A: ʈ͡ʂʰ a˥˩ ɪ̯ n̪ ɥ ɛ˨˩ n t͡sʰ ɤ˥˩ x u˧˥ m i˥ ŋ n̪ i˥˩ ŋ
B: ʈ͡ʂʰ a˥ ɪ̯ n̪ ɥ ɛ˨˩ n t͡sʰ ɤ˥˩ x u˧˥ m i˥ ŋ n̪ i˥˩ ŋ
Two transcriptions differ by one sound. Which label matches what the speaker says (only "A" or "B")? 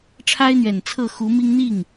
B